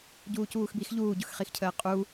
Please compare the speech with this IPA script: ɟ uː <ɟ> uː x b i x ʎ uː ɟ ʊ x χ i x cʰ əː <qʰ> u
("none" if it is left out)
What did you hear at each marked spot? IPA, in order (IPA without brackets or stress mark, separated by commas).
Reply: c, qʼ